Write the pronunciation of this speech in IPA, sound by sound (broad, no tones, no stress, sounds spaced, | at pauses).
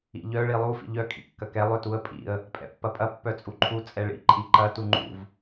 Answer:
ḭ ʎ œ ɭ i lˠ u f ḭ ʎ œ kʼ ḭ kː ɐ k ɛ lˠ ʏ t u ə̯ pʼ ḭ ə̯ | pʼ ɛ̰ pː ɐ pʼ ɐ pː œ t͡sʼ u ǃʰ u t͡sʼ ɛ ɭ ḭ ǃʼ i ǃ ɐ t u ŋ͡ǃ ṵ v